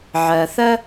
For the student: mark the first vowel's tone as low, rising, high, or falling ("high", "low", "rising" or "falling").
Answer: low